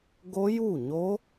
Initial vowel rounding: rounded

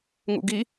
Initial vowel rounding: rounded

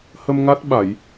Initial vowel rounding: unrounded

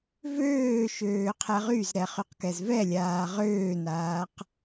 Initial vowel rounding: rounded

